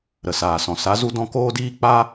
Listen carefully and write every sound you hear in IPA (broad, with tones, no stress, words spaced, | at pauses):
ɾə˨saː˨sɔ̃˨ sa˨˦zu˧dɔ̃˧ koː˦diː˦k͡paː˦